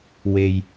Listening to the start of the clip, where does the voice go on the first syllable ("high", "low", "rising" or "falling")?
low